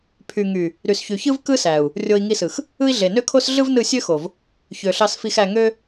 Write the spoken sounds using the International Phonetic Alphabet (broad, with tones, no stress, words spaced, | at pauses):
pʰy˨ŋy˨ | ɾy˨s çy˨çɯ˦vkɯ˦sæ˨u̯ | rʲo˧i̯ ŋi˧sɯ˨x | ɯ˦i̯ɮe˨ nø˦kʰo˦s ɮɯ˦vnɯ˦˨sʲø˦ xo˨v | çø˨ɬɑ˧s fi˧xæ˧ ŋø˦